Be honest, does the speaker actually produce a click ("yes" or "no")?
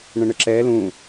yes